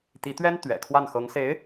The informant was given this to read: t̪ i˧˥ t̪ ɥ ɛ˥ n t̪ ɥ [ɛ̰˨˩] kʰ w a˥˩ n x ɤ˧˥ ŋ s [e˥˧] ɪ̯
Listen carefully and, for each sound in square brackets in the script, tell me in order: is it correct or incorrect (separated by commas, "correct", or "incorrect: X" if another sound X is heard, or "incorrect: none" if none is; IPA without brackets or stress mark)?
correct, incorrect: e˧˥